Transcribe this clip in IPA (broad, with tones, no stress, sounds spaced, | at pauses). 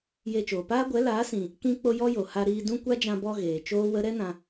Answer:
j e˧ t͡ʃ oː˨ p aː˦ ɡʷ ɛ˨˦ l aː˨˦ s ĩ˨ | k ĩ˧ k͡p o˧ j ɔ˦ j o˨ h a˧ ɾ iː˧ d ũ˦ kʷ a˦ d͡ʒ ã˧ b ɔ˧ ɣ eː˨ t͡ʃ oː˦ w ə˦ ɾ ɛ˦ n ã˧